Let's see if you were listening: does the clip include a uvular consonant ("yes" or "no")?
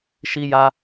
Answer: no